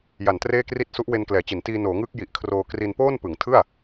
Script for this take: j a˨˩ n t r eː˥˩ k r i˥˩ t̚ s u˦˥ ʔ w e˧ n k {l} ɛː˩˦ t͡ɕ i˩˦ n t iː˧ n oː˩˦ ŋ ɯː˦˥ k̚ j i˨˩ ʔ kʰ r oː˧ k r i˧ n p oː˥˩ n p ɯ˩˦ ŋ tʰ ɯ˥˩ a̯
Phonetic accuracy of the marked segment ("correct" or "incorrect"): correct